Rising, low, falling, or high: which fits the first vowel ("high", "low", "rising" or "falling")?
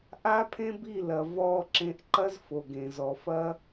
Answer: high